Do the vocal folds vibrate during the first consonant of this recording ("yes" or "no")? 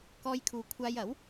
no